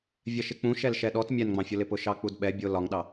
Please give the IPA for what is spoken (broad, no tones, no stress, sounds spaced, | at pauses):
vʲ ɜ ʃ ɪ k͡p ũ ʃ ɛ l ʃ ɛ ɗ ɔ t mʲ ɛ n ŋ͡m ɑ̃ fʲ ʊ l ɪ p ʊ ʃ ɑ k͡p u d ɓ ɛ bʲ ʊ l ɒ ŋ ɗ ɑ